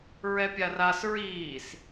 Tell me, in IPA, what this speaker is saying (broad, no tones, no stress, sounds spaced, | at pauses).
ɹ ɛ pʲ a r a s ɹ iː s